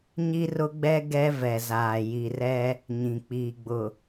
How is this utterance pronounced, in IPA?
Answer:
ɲ i˦ r ʊ˦ ɡ͡b ɛ˦ ɡ ɛ˦ v ɛ˨ z aː˨ j i˨ r ɛ˦ | ɲ ĩ˨ k͡p iː˨ ɡ͡b ʊ˨

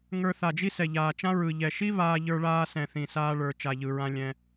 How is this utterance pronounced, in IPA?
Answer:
ŋ ə˞˧ θ a˨ d͡ʒ i˦ s ɛ˨ ʎ aː˨ t͡ʃ ã˦ ɹ ɯ˨ ʎ ɛ˨ ʃ i˦ β aː˦ ʎ ə˞˦ ɭ aː˦ s ɛ̃˨ θ ĩ˨ s aː˧ ɭ ə˞˨ t͡ʃ a˨ ʎ ɯ˨ ɹ ã˧ lʲ ɛ̃˧

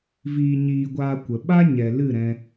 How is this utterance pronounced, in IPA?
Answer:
v iː˧ ɲ iː˧ ɡʷ aː˧ kʷ ə˨ ɓ a˦ ɲ ɛ˨ l ɨ˦˨ ɾ ɛ̃˧

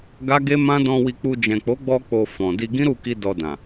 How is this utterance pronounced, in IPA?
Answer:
ɡ a˦ ɡ e˦ m ã˦ d ɔ̃˧ w i˧ k͡p u˧ d͡ʒ ɛ̃˨ k͡p o˨˦ ɡ͡b ɔ˧ k͡p o˧ f ɔ̃˨ d i˧ ɡ ĩ˦ ɾ u˦˨ k i˧ d ɔ˧ d ã˨

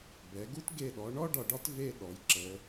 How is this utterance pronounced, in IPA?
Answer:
b ɛ˩˧ ɡ u˥ t ɡ e˧˩ ɗ ɔ˩˧ ɳ ɔ˥ ɖ ɒ˧˩ ɖ ɒ˥ t v e˥˧ ɗ ɔ˩˧ j ǁ ə˩˧

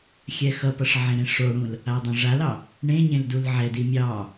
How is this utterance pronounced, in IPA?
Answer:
xʲ ɛ x ʌ p ʌ ʂ ʕ ẽ ɾ ẽ ʂ o ɽ ũ l | a dˤ ẽ ʐ a l ɑ | ɳ ẽ ɲ ẽ l d u l ʕ ɛ d i mʲ ɑ

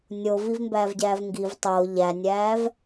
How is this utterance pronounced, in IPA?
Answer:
nʲ o v i v m b æː v ɟ æː v ŋ ɡ i v tˤ o ʎ æ nʲ æː v

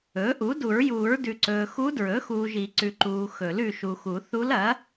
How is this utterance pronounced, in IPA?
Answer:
ɵː˩˥ ʔ u˩˥ d u˨˩˦ ɹ j uː˨˩˦ ɹ d ʉ˨ ǀ ɵː˨ x u˧˥ d ɹ ɵ˩˥ x uː˨ ʒ i˨˩˦ ǀ ʉ˨ ǃ uː˨ x ɵ˨˩˦ l ʉ˨ ʃ u˨ x u˨˩˦ θ u˧˥ l ɐ˩˥

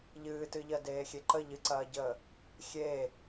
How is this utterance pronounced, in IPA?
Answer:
ʎ ɨː t ɨ ʎ ɜ d eː xʲ e ǃ ə ʎ ɨ ǀ ɐː ɟ əː | xʲ eː

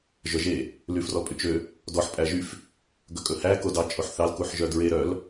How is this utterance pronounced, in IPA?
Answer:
ʒ œ ʒ e | l y f r ɔ pʼ y t͡ʃ ø | d ɔ ħ pʼ æ ʒ y f | ɡ ɵ kʼ ɵ h æ k o d ɑ t͡ʃʼ o ħ θ ɑ l k u ħ ʒ œ d ɹ e ɾ œ l

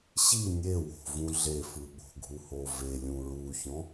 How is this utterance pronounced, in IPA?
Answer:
ɕ i nʲ e w o̤ v ũ ɮ e f ɯ ɓ o̤ ɡʱ u h o v e lʲ ũ ɹ u ç ɔ̃

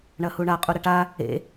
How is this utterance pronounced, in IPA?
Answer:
ɳ ɐ h u ɳ a qʼ u ɾ ɐ ʈ a | ḛ

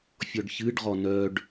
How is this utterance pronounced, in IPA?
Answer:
fʲ ɔ ɖ ç ɨ ɖ ʁ ɔ n œ ɖ

